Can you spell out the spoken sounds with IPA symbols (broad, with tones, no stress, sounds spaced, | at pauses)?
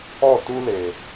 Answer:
ɔ˦˨ t u˦ l e˨